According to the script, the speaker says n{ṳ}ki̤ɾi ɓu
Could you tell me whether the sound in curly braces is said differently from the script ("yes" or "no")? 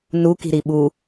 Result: yes